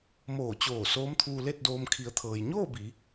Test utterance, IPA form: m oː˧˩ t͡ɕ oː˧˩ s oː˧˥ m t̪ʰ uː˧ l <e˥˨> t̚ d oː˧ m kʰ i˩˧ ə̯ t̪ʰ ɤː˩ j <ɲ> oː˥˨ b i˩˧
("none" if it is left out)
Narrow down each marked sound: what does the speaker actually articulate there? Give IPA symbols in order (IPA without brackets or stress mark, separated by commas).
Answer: e˥˨, ɲ